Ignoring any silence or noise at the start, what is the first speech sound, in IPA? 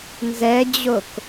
n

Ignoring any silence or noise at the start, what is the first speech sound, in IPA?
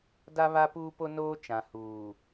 d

